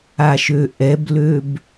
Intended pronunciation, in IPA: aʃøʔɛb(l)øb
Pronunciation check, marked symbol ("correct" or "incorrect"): correct